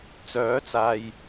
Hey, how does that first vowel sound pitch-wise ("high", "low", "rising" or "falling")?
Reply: rising